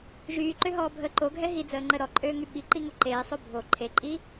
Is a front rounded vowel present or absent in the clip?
present